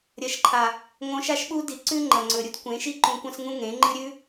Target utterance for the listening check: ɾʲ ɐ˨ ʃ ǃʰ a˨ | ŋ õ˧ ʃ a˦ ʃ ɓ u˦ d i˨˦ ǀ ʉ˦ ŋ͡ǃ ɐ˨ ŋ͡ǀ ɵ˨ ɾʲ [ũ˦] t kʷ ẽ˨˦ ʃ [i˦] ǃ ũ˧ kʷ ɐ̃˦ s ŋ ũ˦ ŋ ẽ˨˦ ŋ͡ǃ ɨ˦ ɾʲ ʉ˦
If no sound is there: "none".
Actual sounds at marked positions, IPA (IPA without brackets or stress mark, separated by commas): u˦, i˦